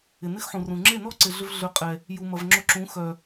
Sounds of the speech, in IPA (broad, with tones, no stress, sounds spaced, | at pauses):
ɪ˨ n ɪ˦ x ħ ũ˨ r ũ˨ ŋ͡ǁ e˦˨ n ɔ˦ ǀ ɪ˨ ɮ ʏ˦ v ɮ ø˧ qʼ ɛ˨ | j u˨ m ɐ˨ v ŋ͡ǁ ʊ˧ ǁ ũ˨˦ x œ˨